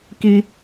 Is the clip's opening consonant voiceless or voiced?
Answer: voiceless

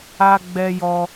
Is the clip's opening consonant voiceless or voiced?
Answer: voiced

